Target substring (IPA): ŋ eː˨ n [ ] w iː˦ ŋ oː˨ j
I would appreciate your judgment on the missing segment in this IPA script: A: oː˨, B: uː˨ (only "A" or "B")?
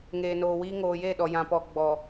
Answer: A